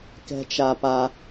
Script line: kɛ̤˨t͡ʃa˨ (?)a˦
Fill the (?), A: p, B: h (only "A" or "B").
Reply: A